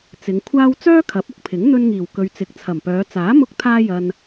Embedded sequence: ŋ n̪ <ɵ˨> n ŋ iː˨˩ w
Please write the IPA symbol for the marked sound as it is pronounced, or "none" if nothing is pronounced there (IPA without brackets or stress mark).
ɵ˧